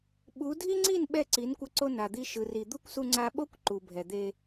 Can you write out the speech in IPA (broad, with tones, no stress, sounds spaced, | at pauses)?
ɓ u˨˦ dʱ i˦ ŋ͡ǀ i˦˨ n ɓ ɛ˦˨ ǀ i˨˦ n kʷ ʌ˧ ǀ o˧ n a˨ d̪ i˧ ʃ ɯ˨ r i˨ d̪ u˦ kʷ s u˧ ŋ͡ǀ a˧ ɓ o˦ kʷ ǃ u˨ bʱ ɛ˨ d̪ e˧